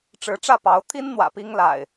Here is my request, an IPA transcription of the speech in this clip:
ʈ͡ʂɻ̩˨˦ʈ͡ʂä˥˨ pɑ˨˦ʊ̯ t̪ʰi˦n n̪wä̰˨˩pi˦ŋla̰˨˩ɪ̯

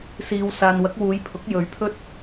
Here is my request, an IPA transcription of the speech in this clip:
siː˨w saː˨nwɐ˨˥k̚ wuː˨˧jpʰʊ˨˥k̚ jɵ˨˧ɥpʰɵ˥t̚

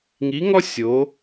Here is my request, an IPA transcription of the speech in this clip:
ŋi˧˥ŋɔ˥ sʲo˧˥

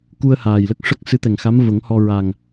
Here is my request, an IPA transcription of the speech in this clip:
ku˧ə̯haː˨˩jlə˦˥k̚ ʂə˦˥k̚ sɨ˧˥t̪ɛ˨˩ŋxa˧˥mvə˨˩˦ŋ hɔ˧ ɹa˨˩ŋ

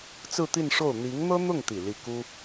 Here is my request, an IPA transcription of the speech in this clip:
t͡sɹ̩˥˧t̪i˥˧nʂo˥˩ʊ̯ n̪i˧˥ŋn̪ɤ˥n̪ʊ˥˩ŋt̪i˨˩ li˥˩ ku˥

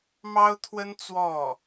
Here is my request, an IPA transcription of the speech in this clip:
mɑ˥ʊ̯t̪ʰwə˥n t͡swɔ˥˩

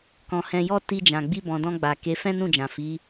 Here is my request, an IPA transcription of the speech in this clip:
kɔ̃˨ hɛ̃˨jɔ˧ ti˧d͡ʒã˨ ɡ͡bi˧bɔ̃˨dɔ̃˧ɡ͡ba˨ ke˨˦fɛ̃˦nũ˦˨d͡ʒã˨ fi˨˦

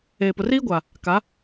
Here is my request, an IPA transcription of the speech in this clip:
eː˨pʊ˨riː˦ɡʷa˨ | ka˨˦

